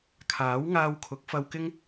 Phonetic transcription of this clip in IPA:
kʰ aː˨˥ w ŋ aː˧ w kʰ ʊ˨˥ k̚ f ɐ˧ w k ɪ˥ ŋ

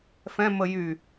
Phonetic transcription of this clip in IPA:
f ɛ̃ m ə j y

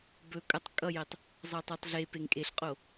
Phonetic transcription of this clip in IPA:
b ɵ kʼ ʌ tˤ kʼ ʌ j ɛ tˤ | zˤ ɤ tˤ e tˤ ɮ e p e ŋ kʼ e ɬ qʼ o

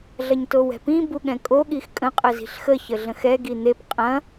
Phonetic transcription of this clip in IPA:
ɮ ɐ ɲ t o w ɛ̤ p ĩ b u ɠ ɛ̃ kʼ o ɠ i x kʼ ə̃ qʼ ə z i̤ ɬ x ə ç ə ɮ ə̃ x ɛ ɡ i n̪ e p qʼ ɐ̃

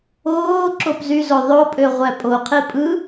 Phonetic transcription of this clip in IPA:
oː ǁ o p z y z o ðˤ o pʼ ø ʁʷ æ pʼ o qʰ i pʼ ɯ

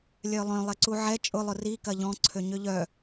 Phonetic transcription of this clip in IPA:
lʲ œ lˠ œ̃ lˠ ɪ ǀ u ʕ ɛ t͡ʃʼ ʊ lˠ ʊ r i k ɐ ʎ ɔ̃ ǀʰ ø ɲ ø ʎ œ

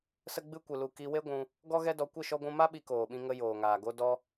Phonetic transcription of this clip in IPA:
s ə˦ ɡ͡b ɨ˦ kʷ ɨ˧ l u˧ k i˧ w e˦ ɡʷ ũ˧ | ɡ ɔ˦ ɣ ɛ˦ d ɔ˧ kʷ ə˦˨ ʃ ɔ˧ ɡʷ ũ˧ m a˦ ɓ i˧ k oː˨ ɓ ĩ˧ ŋ ə˧ j oː˨ ŋ aː˨ ɡ o˦ d ɔ˦

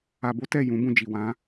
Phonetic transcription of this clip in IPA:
a˧ b o˦ t ɛ˦˨ j ũ˨˦ b ũ˧ d͡ʒ i˨ w ã˨˦

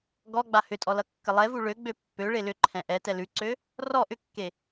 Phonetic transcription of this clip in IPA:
ɡ ɔ ɡ͡b a h ʏ tʼ ɔ l ʌ kː ə lˠ ɛ v u ɭ ø ɡ͡b ø pː ø ɭ e l ʏ ǃʰ ɛ̃ ʔ ɛ t ɛ l ʉ ǀ ø | r ɔ ʔ ʏ kː e

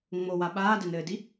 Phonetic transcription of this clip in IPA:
ŋ͡m o w a ɓ aː d ɛ n ɘː d i

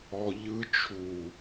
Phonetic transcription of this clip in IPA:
ɔ˧ ʎ ɯ˧ t͡ʃʰ u˨

